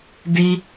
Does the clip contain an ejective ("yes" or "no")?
no